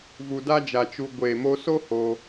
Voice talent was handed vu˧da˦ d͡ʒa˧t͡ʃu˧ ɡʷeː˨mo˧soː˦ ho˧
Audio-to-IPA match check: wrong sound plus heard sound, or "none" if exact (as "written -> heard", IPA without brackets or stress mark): oː˦ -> o˦